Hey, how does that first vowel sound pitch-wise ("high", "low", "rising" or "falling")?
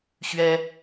high